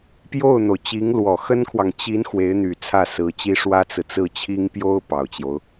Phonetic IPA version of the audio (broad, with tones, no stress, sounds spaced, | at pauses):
p j o˥˩ ʊ̯ n̪ o˩ ʊ̯ t͡ɕ i˧˥ ŋ l w ɔ˨˩ x ə˥ n kʰ w ɑ˨ ŋ t͡ɕ i˧˥ n x w e˧˥ ɪ̯ n̪ y˨˩ t͡sʰ ä˥˩ s ɹ̩˧˥ t͡ɕ i˥ ʂ w ä˥ t͡s ɹ̩˨ t͡s ɹ̩˥˩ t͡ɕʰ i˥ ŋ p j o˥ ʊ̯ p ɑ˨˩ ʊ̯ t͡ɕ j o˦ ʊ̯